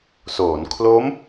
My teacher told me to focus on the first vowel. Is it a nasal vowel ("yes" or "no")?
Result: no